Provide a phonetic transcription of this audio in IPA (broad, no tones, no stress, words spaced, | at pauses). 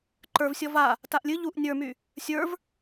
ǃə˞vsʲɔ va | taʔlʲɨ ʎuʔ nʲə˞my | sʲə˞v